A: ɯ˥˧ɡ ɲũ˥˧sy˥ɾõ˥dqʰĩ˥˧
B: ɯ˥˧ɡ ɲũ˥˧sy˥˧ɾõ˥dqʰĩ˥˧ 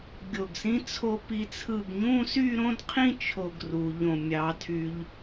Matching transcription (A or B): B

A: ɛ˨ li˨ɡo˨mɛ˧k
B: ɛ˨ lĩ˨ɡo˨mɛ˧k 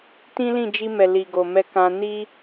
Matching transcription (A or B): A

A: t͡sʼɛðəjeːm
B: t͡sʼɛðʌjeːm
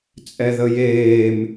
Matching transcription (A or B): A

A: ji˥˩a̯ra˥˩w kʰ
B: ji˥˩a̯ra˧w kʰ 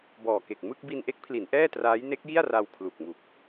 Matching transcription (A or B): B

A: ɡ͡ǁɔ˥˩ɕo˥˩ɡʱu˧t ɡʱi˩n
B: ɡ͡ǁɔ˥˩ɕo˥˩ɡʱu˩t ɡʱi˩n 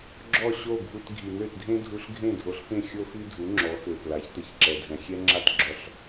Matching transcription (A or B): A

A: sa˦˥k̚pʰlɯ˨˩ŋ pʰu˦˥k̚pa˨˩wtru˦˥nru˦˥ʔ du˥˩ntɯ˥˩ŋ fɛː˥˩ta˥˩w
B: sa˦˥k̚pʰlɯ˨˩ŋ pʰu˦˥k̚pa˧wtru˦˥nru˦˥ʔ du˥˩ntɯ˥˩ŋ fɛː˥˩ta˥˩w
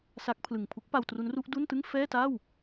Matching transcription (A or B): B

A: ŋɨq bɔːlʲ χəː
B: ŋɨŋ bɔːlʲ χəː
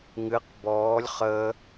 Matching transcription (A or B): A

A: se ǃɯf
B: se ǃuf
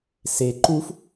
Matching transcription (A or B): B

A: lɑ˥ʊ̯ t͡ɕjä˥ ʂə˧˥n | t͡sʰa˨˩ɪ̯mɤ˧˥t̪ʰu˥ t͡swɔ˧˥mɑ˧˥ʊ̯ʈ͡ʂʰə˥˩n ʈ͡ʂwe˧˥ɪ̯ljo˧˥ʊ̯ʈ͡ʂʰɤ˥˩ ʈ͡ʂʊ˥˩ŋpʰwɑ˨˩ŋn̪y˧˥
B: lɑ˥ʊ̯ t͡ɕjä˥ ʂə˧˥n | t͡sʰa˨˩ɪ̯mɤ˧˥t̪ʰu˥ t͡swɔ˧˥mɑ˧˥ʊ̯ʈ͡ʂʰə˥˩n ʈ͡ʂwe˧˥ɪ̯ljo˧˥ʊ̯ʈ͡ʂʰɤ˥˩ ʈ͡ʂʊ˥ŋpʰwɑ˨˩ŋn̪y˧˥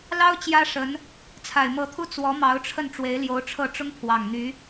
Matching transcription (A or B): B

